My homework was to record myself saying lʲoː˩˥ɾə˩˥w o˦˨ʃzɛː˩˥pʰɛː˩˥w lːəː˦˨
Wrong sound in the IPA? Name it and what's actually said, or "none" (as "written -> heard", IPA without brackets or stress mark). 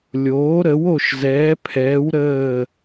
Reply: lː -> ɾ